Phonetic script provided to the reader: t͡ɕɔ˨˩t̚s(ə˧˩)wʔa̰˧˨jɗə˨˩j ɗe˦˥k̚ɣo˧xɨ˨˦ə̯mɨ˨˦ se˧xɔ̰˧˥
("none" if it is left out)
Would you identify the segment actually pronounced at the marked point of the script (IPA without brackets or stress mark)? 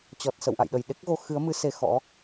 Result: ə̰˧˨